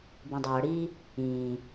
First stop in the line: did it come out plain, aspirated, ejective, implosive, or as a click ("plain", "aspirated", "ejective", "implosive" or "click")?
plain